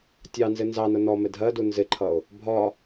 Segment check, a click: present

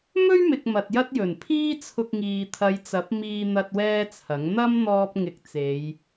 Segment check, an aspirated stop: present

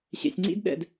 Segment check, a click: present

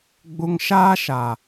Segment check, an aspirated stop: absent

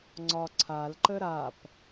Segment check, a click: present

